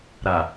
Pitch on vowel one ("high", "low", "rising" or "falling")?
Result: low